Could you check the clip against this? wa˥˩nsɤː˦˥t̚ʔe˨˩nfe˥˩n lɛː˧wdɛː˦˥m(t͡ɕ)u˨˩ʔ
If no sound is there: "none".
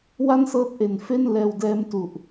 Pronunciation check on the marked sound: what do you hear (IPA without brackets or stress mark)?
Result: t